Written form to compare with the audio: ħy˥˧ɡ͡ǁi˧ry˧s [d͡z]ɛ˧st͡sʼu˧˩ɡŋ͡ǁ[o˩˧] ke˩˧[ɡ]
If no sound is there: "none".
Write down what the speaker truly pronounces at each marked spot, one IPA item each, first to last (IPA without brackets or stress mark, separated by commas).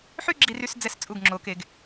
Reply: d͡z, o˩˧, ɡ